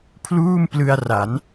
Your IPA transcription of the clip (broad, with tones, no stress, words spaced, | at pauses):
pʰluː˥˩mplɯ˧a̯ ra˩˦n